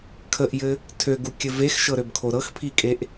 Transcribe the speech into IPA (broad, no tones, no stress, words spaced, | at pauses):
kʰəʔjɘ | tʰøɡukʲɘ vexʃɤɾøbkʰo ɾɤxpʰikʼeʔ